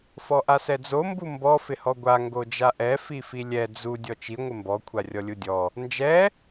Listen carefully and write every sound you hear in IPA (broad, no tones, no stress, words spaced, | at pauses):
fɔʔasɛd͡zo mbumbɔ fɪhɔɡʷa ŋɡod͡ʒaʔɛ fifilʲɛ d͡zu dʲɔt͡ʃi ŋʷɪmbɔ kʷʰarʲɔlʲudʲɔ | nd͡ʒɛ